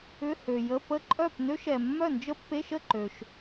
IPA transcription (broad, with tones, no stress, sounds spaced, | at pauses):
ʏ˧˥˧ h ø˨ j ə˧˥˧ p ə˦˥ ǃʼ œ˥˨ p n ø˦˥ ʃ ɛ˨ mː œ˥˨ n d͡ʒ ə˦˥ pː e˧˥˧ ʃ ə˥˨ ǃ ø˨ ʃ